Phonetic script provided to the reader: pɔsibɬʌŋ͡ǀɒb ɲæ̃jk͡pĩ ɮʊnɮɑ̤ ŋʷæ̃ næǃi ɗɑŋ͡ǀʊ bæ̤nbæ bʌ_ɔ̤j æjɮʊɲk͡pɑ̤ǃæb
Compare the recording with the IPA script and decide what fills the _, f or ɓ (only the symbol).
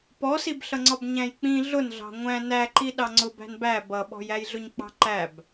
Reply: ɓ